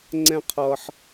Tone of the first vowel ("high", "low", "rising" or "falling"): high